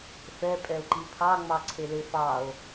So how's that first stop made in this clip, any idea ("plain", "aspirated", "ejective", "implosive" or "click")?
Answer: ejective